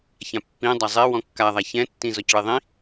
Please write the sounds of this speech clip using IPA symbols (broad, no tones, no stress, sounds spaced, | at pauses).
ç ã pː ĩ dˤ a zˤ e w ɔ̃ kː a ðˤ a ç ɛ̃ tː ĩ z ɔ c ɭ e ðˤ ĩ